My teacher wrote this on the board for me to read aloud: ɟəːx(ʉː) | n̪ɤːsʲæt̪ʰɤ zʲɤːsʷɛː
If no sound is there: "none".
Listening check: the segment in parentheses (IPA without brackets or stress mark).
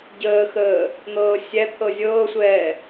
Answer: əː